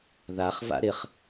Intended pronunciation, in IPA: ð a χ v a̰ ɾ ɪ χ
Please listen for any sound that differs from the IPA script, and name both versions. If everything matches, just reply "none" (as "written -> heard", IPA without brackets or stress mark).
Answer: none